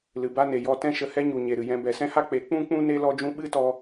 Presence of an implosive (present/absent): present